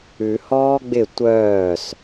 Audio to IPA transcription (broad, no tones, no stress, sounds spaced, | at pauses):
ʉ h ɔː ɡ͡b ɪ tʷ œː s